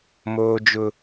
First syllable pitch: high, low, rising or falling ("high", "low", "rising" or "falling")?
high